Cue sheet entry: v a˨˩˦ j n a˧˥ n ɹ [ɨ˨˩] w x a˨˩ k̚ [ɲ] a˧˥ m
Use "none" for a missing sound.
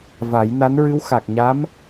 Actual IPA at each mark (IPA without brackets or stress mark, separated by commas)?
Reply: ɨ˧˥, ɲ